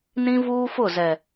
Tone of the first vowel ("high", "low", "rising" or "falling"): high